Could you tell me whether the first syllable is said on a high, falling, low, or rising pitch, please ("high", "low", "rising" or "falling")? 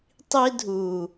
high